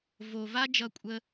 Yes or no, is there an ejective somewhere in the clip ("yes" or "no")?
yes